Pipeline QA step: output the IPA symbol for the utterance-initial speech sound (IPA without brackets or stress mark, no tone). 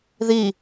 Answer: ð